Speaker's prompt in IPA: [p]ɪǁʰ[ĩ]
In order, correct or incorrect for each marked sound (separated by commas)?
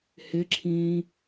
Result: incorrect, incorrect